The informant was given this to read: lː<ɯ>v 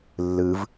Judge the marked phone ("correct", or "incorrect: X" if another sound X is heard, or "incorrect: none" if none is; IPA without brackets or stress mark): correct